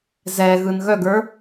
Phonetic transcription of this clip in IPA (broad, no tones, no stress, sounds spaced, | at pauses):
z ɛ ɣ ɯ n ɣ œ ɡ ə˞